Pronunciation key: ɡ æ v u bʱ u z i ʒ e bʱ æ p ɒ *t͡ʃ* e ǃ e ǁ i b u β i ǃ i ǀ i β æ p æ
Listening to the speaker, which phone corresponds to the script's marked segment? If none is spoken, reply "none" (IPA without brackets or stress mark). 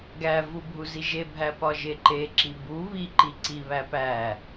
ʒ